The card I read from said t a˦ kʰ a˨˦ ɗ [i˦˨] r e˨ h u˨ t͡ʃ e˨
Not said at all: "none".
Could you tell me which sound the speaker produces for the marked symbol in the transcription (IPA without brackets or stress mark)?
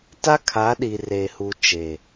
i˨